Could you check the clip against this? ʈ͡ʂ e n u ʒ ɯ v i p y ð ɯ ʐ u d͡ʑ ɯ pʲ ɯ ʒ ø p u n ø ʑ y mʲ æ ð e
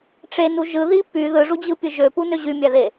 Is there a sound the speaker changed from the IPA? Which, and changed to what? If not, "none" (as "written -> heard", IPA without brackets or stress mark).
v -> ð